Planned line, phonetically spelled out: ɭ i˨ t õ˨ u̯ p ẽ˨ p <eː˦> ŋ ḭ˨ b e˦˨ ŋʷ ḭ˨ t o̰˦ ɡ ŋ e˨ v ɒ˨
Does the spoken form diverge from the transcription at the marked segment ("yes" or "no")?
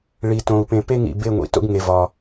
yes